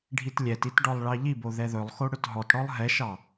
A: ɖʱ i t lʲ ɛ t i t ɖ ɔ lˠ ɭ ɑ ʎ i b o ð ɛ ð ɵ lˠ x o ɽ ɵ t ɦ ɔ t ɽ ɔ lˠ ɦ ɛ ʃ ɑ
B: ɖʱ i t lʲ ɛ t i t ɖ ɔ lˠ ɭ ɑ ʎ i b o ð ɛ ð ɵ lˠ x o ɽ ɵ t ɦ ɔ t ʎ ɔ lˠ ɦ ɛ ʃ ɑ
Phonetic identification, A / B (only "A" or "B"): A